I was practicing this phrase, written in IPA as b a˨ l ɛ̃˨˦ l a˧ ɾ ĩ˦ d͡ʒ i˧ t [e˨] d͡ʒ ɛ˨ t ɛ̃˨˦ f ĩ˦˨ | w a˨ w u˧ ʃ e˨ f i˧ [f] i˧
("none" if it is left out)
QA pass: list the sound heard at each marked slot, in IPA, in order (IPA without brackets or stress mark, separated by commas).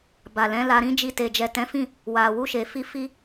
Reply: e˨, f